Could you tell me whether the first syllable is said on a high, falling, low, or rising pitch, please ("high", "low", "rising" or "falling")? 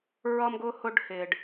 high